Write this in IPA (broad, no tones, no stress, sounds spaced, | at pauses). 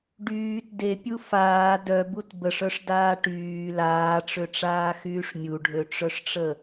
ɖ yː t d e pʲ u f aː d œ b u t b ə ʂ œ ʂ d aː ʈ yː l aː ʈ͡ʂ ø ʈ͡ʂ aː x yː ʂ mʲ u ɖʱ ø ʈ͡ʂ œ ʂ ʈ͡ʂ ə